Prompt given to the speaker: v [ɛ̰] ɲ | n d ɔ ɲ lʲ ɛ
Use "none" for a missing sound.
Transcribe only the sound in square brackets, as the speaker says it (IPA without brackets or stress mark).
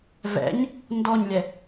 ɛ̰